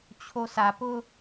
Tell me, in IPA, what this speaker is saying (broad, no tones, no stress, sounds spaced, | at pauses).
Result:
t͡ɕʰ o s a p ʊ